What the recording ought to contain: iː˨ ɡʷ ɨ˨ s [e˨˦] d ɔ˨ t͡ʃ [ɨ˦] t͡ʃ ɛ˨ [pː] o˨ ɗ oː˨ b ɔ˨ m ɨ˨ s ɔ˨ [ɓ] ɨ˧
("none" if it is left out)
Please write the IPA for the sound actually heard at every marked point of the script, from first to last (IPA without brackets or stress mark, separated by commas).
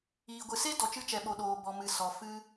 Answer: e˦, ɨ˧, ɓ, f